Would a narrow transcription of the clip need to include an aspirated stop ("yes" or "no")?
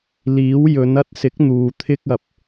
yes